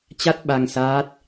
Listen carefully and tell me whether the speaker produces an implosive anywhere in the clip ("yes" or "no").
yes